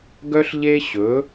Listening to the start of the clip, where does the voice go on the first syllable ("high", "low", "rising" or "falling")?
high